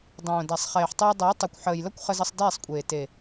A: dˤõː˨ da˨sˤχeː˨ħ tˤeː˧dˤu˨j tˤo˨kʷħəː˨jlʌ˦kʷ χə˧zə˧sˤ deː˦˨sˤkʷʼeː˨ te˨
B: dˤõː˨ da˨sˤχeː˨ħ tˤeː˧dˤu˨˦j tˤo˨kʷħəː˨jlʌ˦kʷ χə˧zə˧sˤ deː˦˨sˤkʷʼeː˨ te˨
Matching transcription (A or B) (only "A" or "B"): B